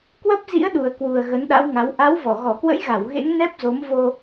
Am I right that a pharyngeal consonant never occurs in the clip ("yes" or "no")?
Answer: yes